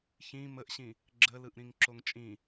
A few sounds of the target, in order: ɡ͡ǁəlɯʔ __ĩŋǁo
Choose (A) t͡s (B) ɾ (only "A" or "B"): B